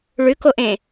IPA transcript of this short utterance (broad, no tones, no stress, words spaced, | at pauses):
ɭʉkoʔẽ